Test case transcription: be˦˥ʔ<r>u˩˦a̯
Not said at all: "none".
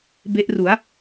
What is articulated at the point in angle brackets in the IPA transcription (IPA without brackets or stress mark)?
r